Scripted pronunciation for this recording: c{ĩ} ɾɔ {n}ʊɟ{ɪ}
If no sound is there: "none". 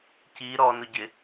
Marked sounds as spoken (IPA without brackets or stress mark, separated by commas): i, n, ɪ